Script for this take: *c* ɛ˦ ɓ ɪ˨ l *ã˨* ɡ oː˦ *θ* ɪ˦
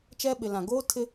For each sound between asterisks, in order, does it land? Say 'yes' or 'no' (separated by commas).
no, yes, no